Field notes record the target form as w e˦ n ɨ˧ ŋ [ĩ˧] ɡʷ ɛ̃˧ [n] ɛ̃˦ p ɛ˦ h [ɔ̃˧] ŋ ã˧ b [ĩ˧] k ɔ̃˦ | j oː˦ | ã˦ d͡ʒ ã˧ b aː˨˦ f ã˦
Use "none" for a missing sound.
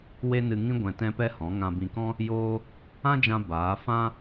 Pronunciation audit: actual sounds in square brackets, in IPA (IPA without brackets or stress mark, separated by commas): ĩ˦, t, ɔ̃˨˦, ĩ˧